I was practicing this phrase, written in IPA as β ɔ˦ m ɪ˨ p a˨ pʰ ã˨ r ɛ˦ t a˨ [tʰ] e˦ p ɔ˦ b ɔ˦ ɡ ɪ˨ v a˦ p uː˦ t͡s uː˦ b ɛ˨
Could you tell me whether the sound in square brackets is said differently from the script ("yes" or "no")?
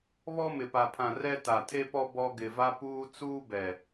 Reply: no